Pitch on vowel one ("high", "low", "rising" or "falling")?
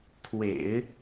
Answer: low